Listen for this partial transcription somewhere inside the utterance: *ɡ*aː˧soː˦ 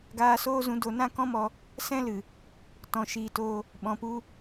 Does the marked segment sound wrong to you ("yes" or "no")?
no